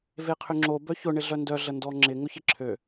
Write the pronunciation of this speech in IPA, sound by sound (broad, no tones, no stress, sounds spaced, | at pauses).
v e qʰ ʏ ŋ͡ǁ o b œ ç ʊ ɳ ɪ ɮ œ n d œ ɮ ə n d ɔ ŋ͡ǁ ɪ ŋ ʊ ç ɪ ǁʰ ø